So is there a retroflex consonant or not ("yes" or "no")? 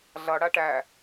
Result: yes